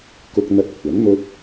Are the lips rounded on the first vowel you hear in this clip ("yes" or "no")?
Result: yes